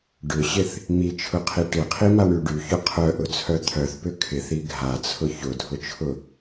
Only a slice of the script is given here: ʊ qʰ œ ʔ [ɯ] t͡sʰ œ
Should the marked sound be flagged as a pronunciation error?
yes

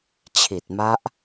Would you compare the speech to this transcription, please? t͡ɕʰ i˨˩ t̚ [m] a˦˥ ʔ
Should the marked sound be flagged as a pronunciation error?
no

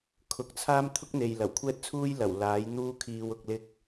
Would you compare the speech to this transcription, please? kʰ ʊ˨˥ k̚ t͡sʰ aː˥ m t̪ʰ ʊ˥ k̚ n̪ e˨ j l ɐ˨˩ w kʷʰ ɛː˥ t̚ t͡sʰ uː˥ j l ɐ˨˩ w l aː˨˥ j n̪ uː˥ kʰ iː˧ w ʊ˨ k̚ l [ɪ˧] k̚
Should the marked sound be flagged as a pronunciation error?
no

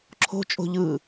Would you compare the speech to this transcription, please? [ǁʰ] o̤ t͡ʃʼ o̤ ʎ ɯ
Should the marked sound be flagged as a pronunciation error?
no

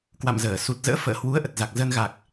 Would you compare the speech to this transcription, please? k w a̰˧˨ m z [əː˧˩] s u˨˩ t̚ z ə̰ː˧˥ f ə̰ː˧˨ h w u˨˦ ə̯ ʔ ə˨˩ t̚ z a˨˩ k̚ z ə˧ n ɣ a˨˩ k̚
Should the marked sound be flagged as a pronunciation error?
no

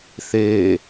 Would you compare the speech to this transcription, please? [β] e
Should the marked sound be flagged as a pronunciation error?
yes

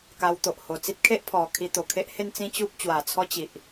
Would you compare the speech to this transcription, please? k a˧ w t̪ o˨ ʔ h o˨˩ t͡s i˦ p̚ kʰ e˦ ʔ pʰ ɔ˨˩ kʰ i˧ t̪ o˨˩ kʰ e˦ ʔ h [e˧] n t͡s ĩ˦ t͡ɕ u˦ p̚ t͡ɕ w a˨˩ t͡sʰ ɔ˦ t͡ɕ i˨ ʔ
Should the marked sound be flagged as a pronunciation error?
yes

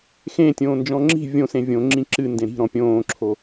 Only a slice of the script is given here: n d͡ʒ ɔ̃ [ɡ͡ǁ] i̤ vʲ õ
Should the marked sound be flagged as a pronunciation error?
yes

